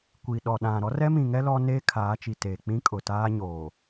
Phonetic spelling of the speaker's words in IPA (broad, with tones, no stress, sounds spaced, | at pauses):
kʷ i˨ ɗ ɔ˨ ɗ ã˨ ɾ ɔ˦ r ɛ˦ m ĩ˨ ŋ ɛ˦ l ɔ˦ n eː˦ kʰ aː˨˦ t͡ʃ i˨ t eː˨ k͡p ĩ˦ kʼ ʊ˨ t aː˦ ɲ oː˨